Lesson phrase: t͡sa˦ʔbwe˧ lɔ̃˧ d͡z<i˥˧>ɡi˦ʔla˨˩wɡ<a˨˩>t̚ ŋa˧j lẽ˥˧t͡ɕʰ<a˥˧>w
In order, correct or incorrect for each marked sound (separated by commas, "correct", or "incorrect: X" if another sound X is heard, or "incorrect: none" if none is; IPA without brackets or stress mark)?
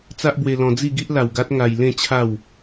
correct, incorrect: a˦, correct